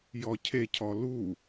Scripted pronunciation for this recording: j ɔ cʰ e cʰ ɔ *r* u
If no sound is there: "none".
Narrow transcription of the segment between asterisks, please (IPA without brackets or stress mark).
l